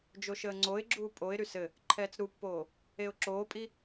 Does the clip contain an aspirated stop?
yes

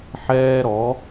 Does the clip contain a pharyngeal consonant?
yes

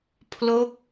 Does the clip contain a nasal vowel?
no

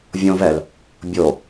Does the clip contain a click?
no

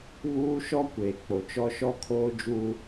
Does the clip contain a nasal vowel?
no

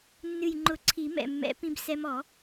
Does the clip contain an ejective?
no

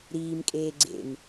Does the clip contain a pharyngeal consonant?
no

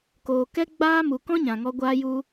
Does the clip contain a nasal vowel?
yes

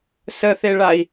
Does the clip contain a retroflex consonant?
yes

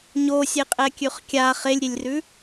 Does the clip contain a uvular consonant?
yes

